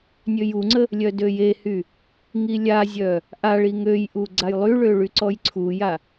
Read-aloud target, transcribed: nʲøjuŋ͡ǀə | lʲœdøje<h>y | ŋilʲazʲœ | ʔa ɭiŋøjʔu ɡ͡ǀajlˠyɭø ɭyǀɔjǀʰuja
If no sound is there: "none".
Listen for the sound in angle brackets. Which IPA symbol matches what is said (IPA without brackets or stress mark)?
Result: h